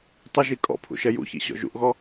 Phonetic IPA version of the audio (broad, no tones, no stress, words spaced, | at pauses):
tˤʊʒi kʼɔ̰pʰṵ ʃɛjṵçḭ ɕɔ̰ʒṵʔɣɔ